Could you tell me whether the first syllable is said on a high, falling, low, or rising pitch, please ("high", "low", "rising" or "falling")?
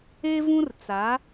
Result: high